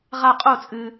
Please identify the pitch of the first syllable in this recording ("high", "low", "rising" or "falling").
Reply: falling